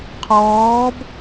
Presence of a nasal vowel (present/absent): absent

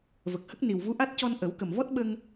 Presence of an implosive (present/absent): present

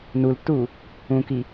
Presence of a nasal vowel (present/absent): present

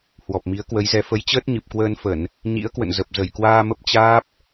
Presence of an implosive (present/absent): absent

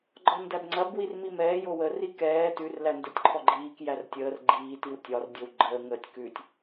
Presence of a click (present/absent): present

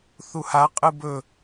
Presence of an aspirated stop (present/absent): absent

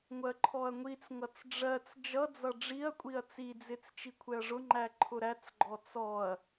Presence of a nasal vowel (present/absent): absent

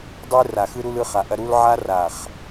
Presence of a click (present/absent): absent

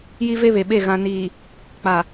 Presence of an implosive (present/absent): present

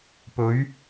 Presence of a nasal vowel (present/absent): absent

